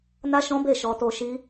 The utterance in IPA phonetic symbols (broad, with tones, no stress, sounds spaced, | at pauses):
n a˦ ʃ ɔ̃˦ b e˦˨ ʃ ɔ˧ t o˧ ʃ i˦